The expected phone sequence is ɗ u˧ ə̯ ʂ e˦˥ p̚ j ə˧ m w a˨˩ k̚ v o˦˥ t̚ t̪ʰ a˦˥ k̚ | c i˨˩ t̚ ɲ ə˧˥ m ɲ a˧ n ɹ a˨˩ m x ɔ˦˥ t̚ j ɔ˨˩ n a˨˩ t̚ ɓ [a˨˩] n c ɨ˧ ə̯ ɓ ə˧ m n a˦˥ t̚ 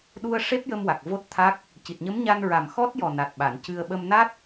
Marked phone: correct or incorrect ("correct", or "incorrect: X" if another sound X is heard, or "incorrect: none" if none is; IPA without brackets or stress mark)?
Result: incorrect: a˨˩˨